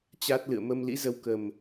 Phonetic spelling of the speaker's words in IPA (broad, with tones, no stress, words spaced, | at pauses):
t͡ɕa˦˥t̚ lɨ̰˧˨ə̯mə˧mlḭ˧˥ zə˧w kə˨˩m